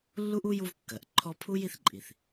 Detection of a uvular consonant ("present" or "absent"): absent